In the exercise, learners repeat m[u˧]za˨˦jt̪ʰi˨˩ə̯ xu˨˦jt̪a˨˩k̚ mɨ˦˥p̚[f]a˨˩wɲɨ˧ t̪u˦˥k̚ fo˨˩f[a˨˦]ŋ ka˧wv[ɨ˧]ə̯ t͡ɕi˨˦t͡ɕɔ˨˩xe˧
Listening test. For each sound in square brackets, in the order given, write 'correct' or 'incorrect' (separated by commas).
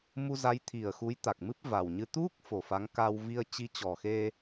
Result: correct, incorrect, correct, incorrect